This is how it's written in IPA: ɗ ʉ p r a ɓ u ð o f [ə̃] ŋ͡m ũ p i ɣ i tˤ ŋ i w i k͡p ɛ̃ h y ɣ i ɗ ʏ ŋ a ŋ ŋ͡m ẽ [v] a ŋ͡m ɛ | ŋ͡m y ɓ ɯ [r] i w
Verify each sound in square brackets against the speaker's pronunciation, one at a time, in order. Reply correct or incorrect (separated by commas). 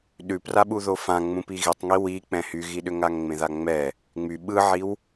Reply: incorrect, incorrect, incorrect